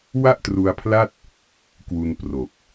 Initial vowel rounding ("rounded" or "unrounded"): unrounded